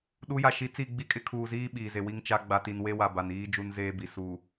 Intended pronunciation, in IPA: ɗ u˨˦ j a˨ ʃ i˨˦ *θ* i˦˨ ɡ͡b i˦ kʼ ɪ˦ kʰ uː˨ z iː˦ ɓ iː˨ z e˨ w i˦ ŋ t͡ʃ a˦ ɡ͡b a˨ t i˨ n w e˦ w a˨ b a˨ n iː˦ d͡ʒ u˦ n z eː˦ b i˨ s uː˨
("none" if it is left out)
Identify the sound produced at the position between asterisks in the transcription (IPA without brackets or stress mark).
t͡s